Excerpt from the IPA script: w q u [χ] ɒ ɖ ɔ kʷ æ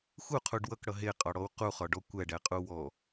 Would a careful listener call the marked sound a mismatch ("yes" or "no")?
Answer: no